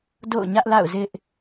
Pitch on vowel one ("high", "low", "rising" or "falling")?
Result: falling